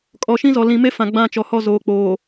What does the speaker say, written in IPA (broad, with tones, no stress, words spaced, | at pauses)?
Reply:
kʼɔ˨ʃĩ˦zɔ˨ lĩ˨me˦fã˨ ɡ͡bã˦˨t͡ʃɔ˨hɔ˦˨ zoː˨k͡poː˨